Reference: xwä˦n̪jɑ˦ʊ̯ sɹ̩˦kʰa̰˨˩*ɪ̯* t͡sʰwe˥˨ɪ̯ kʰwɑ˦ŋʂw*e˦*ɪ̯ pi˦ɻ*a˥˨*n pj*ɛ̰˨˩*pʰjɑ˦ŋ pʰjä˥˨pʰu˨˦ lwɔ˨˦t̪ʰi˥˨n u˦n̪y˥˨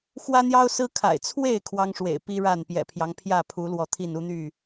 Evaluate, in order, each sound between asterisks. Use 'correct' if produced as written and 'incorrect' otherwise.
correct, incorrect, correct, correct

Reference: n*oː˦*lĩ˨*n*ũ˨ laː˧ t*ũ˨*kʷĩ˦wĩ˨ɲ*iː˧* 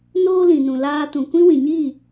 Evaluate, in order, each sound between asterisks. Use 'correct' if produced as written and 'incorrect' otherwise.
correct, correct, correct, incorrect

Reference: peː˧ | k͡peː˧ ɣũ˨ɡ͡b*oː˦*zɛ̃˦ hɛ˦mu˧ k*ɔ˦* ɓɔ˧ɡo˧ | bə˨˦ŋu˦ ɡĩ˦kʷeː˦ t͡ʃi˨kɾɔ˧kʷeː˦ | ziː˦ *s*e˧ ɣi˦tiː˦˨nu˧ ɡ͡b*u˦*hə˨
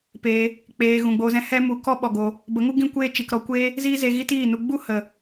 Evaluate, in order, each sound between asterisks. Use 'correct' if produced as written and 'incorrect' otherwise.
incorrect, correct, incorrect, correct

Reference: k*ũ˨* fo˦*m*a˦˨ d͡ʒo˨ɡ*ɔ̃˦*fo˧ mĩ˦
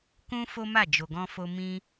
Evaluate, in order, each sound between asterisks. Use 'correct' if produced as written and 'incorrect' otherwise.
incorrect, correct, incorrect

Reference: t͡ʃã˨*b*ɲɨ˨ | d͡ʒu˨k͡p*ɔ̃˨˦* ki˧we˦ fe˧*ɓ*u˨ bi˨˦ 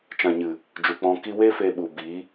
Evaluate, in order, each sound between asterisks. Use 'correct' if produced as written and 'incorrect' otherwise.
incorrect, incorrect, correct

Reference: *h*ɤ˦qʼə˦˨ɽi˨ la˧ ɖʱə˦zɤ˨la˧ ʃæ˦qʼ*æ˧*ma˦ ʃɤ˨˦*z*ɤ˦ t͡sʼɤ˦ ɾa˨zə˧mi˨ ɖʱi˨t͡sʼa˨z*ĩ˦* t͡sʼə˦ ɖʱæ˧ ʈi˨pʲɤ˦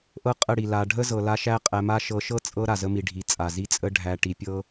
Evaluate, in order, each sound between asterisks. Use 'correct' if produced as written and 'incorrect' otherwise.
incorrect, correct, incorrect, incorrect

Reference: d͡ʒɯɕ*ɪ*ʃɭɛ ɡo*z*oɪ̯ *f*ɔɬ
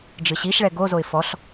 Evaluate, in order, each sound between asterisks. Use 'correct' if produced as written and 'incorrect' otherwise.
incorrect, correct, correct

